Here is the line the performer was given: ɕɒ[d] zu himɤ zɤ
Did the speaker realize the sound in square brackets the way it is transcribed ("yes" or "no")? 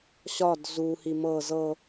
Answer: yes